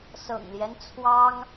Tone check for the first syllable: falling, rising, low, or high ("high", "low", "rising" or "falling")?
low